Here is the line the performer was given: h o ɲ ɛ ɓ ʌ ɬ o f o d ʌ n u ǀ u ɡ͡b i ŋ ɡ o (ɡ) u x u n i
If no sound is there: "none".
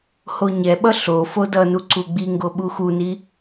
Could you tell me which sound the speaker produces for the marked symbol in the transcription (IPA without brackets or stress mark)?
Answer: ɓ